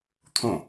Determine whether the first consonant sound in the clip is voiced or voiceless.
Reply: voiceless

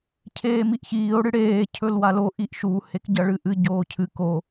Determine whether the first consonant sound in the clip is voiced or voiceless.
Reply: voiceless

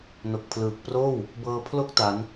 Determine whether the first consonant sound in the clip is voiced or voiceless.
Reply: voiced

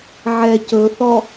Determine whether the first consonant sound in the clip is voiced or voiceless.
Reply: voiced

